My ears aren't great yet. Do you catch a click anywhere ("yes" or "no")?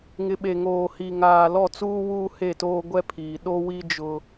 no